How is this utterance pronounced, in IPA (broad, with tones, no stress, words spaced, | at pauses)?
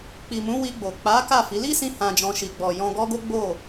k͡pi˨mũ˨˦wi˧ɡ͡bo˨ k͡pa˨˦ ka˦˨fi˨˦ li˦sĩ˧ hã˨d͡ʒɔ̃˨ ʃi˨ɡ͡bɔ˨ jɔ̃˧ɡɔ˦ɡo˦ɡ͡bo˦˨